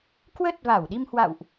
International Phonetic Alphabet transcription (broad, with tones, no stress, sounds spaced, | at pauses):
k w ə˦˥ t̚ v a˧˩ w ɗ i˧ m h w a̰˧˨ w ʔ